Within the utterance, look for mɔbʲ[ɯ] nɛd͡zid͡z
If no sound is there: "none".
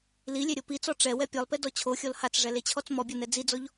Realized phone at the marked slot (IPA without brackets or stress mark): ɤ